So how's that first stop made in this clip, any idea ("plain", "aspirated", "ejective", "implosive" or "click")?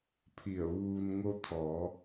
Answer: aspirated